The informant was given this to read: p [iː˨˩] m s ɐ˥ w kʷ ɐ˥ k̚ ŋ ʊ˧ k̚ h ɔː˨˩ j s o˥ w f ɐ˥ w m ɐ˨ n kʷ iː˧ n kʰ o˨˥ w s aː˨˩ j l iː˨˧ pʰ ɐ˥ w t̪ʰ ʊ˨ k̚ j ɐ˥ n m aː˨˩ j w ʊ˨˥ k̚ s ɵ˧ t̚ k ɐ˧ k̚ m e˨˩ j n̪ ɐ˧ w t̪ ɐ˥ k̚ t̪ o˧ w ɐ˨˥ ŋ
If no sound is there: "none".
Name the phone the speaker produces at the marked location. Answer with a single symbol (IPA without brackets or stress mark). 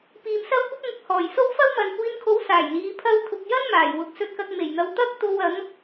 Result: iː˨